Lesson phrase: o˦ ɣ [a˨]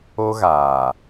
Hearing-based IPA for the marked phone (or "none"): aː˨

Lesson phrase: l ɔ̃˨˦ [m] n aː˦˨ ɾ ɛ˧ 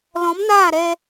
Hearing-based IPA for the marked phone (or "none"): m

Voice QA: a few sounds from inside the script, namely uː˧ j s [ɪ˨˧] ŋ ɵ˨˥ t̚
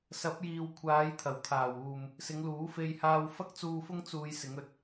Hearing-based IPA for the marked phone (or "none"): ɪ˨˥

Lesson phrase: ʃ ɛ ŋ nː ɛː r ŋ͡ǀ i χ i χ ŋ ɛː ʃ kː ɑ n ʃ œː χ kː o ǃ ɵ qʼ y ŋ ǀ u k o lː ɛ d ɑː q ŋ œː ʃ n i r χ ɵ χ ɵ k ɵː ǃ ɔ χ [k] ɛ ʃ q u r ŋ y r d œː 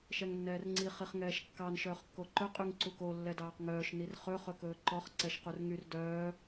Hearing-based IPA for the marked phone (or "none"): ǀ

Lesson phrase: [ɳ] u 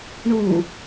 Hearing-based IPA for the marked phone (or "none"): ɳ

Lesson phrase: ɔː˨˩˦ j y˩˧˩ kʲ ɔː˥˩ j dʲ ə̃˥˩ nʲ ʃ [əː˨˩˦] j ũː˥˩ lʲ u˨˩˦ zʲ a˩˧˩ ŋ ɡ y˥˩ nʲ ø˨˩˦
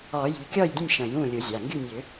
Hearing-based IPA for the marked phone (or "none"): ə̃ː˨˩˦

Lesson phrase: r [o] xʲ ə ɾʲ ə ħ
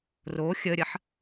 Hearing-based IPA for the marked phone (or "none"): o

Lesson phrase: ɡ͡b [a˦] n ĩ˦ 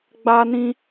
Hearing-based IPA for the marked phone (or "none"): a˦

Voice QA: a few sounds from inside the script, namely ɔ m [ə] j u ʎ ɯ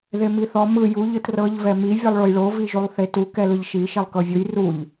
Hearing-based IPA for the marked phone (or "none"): ɯ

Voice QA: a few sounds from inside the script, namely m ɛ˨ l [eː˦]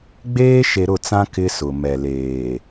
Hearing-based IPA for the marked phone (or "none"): eː˨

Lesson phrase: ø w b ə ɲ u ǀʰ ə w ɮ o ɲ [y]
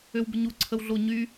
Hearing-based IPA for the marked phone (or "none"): y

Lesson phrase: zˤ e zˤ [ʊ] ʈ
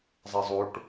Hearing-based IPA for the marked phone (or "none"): u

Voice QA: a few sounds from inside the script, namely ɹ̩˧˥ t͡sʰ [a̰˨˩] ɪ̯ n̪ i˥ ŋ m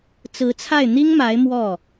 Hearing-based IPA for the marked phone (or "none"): a˥˩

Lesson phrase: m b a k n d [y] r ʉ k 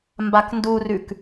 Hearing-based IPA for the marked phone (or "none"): u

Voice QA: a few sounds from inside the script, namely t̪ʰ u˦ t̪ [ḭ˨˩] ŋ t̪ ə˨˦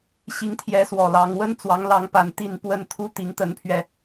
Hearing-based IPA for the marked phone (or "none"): i˨˦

